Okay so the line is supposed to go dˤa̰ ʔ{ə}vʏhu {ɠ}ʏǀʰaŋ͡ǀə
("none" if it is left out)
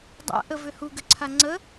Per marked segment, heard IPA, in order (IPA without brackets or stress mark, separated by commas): ə, ɡ